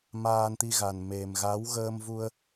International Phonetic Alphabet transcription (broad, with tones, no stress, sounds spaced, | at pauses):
m aː˧ n t̪ i˧ ɣ a˨˩ n m e˨˩ m ɣ a˨˦ w ɣ əː˧ m v u˧ ə̯